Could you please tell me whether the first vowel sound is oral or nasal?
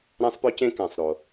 nasal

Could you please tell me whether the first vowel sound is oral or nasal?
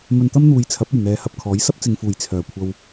oral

